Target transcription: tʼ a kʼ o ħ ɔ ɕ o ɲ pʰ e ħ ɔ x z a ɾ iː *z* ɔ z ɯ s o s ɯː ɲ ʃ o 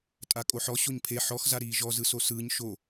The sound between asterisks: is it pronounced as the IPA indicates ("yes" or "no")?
no